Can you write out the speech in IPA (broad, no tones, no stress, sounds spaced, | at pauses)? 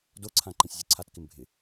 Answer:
d o ǀʰ ã ǃ ɛ̃ sʲ zʲ u ǀʰ a t k ɪ m bʱ ɪ